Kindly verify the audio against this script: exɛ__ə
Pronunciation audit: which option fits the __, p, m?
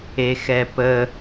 p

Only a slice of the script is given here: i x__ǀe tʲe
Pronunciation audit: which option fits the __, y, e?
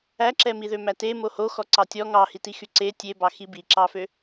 y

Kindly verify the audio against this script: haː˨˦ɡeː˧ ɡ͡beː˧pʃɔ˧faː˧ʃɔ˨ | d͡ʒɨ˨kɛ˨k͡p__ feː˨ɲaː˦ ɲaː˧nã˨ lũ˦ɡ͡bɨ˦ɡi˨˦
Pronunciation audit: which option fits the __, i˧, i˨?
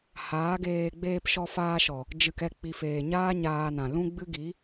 i˨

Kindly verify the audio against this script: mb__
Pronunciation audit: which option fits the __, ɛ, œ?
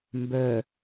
œ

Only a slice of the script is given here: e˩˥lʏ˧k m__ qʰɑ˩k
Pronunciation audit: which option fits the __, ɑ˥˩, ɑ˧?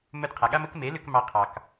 ɑ˧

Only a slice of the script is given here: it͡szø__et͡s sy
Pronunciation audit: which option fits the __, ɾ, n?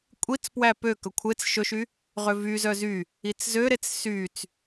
ɾ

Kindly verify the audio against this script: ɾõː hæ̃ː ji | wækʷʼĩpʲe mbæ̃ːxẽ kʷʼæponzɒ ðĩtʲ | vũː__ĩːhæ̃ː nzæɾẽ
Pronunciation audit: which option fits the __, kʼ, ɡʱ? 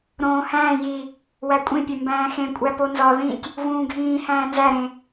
ɡʱ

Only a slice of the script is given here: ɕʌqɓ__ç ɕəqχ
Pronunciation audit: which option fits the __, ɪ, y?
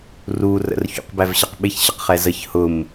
ɪ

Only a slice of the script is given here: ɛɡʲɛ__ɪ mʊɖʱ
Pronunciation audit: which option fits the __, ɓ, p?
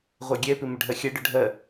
p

